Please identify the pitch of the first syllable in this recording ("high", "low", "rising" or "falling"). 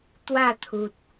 falling